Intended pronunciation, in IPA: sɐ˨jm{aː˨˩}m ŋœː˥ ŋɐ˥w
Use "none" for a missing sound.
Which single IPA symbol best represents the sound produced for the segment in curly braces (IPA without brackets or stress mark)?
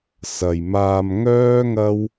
aː˧